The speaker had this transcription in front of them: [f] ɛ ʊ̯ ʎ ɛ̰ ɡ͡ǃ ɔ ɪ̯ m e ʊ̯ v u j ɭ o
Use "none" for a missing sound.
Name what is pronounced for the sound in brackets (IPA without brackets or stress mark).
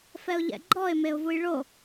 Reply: f